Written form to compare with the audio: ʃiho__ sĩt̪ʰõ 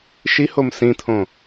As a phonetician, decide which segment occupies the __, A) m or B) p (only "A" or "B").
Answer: A